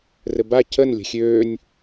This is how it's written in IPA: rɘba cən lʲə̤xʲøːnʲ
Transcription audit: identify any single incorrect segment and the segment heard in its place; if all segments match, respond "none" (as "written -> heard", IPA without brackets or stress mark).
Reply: none